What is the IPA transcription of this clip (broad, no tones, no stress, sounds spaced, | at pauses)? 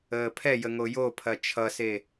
əː pʰ ɛ j ə ŋ o j o pʰ ɐ t͡ʃʰ ʌ s e